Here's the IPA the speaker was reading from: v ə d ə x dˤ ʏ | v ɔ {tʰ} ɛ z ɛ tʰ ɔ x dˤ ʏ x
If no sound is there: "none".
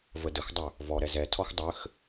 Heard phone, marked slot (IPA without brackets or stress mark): ɾ